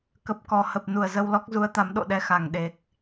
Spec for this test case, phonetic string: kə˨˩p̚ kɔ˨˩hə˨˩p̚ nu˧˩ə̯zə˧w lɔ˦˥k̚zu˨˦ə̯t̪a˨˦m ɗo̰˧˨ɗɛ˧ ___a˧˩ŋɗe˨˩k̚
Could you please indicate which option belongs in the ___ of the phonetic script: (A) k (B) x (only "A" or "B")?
B